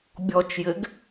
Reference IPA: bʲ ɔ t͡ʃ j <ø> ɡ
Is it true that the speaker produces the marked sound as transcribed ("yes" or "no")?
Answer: no